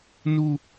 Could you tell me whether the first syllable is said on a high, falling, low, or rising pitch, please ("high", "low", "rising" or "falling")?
high